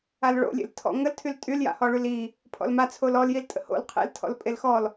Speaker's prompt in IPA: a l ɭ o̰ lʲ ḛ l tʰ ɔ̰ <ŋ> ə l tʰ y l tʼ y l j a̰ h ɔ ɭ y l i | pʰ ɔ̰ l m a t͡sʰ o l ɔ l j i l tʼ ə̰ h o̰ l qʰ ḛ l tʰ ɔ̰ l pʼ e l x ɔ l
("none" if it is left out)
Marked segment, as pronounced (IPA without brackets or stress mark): ŋ